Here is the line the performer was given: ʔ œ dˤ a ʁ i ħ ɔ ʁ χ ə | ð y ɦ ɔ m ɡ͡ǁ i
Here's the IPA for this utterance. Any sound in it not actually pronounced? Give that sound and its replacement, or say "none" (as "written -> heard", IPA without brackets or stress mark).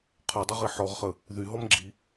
ʔ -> qʰ